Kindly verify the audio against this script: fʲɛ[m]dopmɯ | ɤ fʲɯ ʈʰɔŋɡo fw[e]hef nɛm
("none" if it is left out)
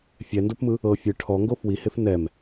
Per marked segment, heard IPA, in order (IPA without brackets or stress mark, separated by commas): n, i